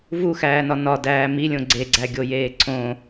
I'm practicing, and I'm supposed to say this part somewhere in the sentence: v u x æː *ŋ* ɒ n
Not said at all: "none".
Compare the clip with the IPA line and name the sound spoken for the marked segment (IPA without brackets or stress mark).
n